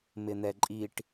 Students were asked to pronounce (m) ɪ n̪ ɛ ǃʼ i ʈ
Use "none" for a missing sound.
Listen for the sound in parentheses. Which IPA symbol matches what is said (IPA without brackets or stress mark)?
m